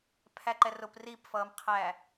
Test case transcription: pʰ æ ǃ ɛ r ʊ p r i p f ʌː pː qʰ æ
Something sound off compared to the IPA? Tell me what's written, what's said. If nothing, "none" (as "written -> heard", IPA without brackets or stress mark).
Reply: pː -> m